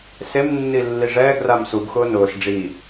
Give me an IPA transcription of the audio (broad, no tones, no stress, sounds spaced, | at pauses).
s e m nː i lː i ʐ ɛː ɡ r a m s u ɡ x ʊː n ʊː s ɖ͡ʐ i